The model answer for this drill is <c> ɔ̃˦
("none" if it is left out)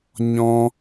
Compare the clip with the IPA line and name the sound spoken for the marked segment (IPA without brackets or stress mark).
ɲ